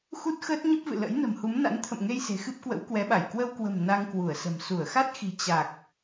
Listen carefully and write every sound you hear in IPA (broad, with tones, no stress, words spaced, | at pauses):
xu˦˥t̚xəː˦˥t̚ ɲə˦˥p̚vɨ̰˧˨lə̰˧˥j nə̤˨˩mhu˨˦mna̰˧˥n t̪ʰə̰˧˨mŋe˧j se̤˨˩xɨ˦˥p̚kwə̰˧˥w kwɛ˨˦ɓa˧˩j kwə˧wkwə̤˨˩m na˧ŋ kwu˧˩ə̯sə̤˨˩m su˧˩ə̯xa˦˥t̚xi̤˨˩ t͡ɕa˨˩k̚